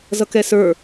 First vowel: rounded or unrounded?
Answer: unrounded